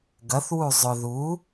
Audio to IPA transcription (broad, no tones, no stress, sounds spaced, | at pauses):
ɡ ɐ θ w u zˤ ʊ ð u